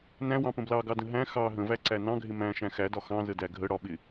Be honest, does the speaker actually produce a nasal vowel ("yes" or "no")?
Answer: yes